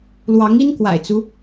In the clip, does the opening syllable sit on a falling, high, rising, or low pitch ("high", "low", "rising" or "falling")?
rising